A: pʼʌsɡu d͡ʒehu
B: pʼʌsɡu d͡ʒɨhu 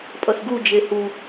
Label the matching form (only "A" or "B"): A